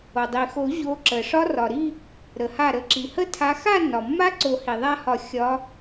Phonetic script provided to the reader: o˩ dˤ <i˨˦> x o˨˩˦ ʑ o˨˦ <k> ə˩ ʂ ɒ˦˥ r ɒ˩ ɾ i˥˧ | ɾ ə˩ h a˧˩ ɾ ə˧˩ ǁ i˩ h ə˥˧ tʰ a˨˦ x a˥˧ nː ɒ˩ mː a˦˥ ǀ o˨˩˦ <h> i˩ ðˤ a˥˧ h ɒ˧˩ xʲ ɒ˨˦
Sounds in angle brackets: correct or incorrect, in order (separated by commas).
incorrect, incorrect, correct